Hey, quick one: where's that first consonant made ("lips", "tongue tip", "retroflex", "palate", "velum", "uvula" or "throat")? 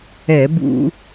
lips